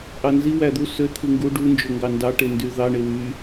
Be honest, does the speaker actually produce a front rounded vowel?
yes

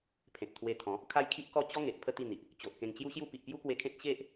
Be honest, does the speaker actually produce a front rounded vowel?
no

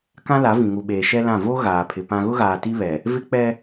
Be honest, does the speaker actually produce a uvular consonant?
no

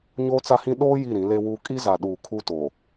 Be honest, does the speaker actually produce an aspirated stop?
yes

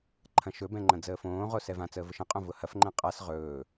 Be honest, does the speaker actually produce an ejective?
yes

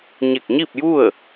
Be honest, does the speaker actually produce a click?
no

